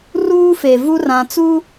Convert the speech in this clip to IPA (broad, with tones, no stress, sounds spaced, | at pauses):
r uː˦ f e˨ v u˦ r ã˨ t͡s u˦